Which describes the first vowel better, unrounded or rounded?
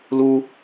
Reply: rounded